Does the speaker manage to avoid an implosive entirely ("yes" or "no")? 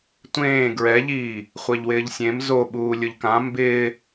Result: no